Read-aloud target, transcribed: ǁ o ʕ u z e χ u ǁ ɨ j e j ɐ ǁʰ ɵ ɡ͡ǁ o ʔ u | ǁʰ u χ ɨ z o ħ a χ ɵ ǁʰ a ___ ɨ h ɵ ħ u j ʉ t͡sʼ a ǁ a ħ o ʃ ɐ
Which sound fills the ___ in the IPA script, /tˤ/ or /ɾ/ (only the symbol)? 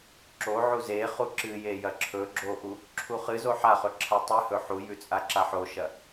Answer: tˤ